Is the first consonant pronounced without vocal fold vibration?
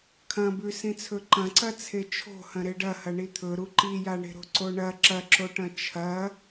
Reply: yes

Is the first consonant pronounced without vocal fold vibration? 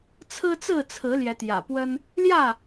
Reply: yes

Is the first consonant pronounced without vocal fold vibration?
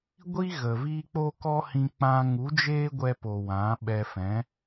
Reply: no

